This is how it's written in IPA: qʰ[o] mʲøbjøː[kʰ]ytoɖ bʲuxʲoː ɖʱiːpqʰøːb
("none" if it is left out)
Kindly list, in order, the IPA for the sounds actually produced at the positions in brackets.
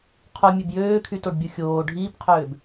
o, kʰ

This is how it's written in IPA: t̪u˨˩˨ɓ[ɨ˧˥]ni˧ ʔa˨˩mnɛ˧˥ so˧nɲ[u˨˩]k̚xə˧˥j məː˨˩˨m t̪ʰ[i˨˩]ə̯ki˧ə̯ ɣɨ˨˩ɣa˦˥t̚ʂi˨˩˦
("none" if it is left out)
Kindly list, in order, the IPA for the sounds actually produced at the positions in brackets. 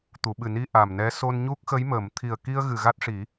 ɨ˨˩, u˦˥, i˨˩

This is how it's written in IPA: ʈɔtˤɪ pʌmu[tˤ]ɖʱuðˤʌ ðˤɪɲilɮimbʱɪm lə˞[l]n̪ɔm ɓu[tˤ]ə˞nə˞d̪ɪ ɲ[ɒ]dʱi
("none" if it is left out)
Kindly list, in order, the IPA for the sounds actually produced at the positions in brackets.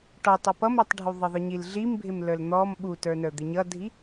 tˤ, l, t, ʌ

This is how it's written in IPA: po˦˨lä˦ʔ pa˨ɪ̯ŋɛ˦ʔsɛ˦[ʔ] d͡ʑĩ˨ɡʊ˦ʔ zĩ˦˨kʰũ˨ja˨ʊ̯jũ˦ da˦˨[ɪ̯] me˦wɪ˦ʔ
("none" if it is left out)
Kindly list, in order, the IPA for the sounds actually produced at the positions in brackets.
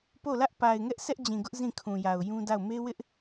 ʔ, ʊ̯

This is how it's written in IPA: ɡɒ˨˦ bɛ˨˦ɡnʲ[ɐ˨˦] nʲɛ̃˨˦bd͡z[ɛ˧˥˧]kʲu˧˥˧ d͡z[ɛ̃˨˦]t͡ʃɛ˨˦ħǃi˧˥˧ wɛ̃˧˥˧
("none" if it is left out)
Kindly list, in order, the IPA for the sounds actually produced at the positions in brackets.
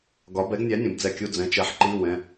æ˨˦, ɛ˧˥˧, ɛ̃˨˦

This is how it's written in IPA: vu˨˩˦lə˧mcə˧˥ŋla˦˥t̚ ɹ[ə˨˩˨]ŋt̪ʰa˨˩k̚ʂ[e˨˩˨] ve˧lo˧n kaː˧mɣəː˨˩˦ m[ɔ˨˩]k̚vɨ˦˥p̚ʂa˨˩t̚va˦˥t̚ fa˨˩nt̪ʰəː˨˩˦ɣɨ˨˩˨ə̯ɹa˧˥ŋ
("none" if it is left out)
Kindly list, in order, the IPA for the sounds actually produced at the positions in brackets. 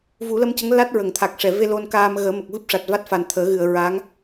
ə˨˩˨, ɛ˨˩˨, ə˨˩

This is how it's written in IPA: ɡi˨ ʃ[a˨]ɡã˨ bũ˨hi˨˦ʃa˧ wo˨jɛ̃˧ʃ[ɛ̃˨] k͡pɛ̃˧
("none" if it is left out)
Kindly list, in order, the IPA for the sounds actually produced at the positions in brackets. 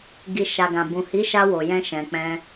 a˨, ɛ̃˨

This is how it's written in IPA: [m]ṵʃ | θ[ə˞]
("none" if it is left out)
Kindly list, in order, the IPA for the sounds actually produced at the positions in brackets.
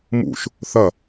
m, ɐ

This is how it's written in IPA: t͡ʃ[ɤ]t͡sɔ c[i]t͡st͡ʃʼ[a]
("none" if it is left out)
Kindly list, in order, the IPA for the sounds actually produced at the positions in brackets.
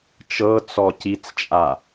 ɤ, i, a

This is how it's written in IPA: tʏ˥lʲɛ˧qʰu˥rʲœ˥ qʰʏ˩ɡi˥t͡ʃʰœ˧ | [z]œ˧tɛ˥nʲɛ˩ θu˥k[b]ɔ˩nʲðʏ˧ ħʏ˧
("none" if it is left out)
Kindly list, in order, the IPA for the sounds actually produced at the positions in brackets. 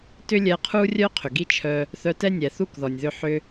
θ, ð

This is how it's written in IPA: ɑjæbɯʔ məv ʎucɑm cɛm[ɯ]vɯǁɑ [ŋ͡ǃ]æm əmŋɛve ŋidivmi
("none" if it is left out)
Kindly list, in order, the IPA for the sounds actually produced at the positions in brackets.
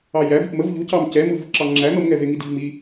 ɯ, ŋ͡ǁ

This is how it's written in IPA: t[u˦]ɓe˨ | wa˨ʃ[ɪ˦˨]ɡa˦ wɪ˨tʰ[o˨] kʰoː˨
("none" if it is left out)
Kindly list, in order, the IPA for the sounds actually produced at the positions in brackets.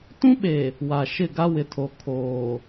ũ˦, ɪ˦˨, o˨

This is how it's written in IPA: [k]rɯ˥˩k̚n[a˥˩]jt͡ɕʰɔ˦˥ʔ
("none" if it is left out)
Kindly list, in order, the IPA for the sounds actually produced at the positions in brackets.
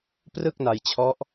p, a˧

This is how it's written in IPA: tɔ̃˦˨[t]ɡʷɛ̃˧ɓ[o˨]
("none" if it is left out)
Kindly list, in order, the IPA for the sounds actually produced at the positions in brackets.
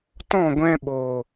none, o˨

